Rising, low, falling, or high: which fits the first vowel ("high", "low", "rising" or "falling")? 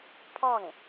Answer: falling